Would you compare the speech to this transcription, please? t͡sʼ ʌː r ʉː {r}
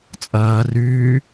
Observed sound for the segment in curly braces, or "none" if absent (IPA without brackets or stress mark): none